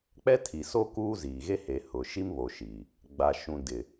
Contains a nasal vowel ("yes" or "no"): yes